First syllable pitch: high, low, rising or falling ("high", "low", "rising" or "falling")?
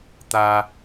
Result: high